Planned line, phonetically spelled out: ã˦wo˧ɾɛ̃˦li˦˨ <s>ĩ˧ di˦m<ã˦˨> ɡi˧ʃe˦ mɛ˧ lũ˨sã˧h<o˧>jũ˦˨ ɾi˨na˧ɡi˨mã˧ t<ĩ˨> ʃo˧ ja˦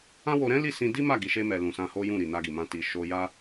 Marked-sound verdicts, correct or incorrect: correct, incorrect: a˦˨, incorrect: o˦, incorrect: i˨

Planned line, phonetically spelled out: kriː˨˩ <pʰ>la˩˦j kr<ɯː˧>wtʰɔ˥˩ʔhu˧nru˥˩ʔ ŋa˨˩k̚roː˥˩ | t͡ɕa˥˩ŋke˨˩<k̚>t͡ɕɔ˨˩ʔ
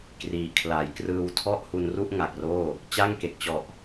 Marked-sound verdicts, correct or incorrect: incorrect: kʰ, correct, correct

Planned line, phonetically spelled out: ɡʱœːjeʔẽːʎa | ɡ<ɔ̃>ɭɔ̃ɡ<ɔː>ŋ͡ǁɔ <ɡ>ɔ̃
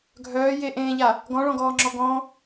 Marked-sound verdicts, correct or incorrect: correct, correct, correct

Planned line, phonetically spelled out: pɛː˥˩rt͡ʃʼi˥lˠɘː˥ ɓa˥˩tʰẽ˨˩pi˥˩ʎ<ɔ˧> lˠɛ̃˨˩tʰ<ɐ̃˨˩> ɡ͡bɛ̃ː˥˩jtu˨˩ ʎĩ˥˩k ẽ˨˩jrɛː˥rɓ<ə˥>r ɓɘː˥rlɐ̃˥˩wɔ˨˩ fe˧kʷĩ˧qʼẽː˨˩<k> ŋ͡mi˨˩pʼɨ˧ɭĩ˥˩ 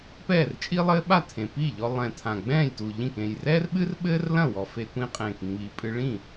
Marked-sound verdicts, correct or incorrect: correct, incorrect: ã˨˩, incorrect: ɨ˥, correct

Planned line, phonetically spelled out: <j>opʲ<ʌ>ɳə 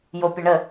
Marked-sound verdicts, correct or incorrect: correct, correct

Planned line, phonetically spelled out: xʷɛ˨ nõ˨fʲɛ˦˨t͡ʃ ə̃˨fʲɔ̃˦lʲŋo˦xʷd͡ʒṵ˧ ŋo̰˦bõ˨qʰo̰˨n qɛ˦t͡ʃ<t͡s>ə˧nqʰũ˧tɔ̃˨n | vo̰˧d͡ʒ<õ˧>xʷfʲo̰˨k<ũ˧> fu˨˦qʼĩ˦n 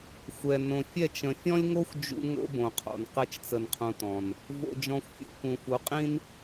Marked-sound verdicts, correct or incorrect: correct, incorrect: ɔ̃˧, incorrect: ũ˨

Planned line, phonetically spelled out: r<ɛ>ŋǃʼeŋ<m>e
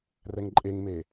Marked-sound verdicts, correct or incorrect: correct, correct

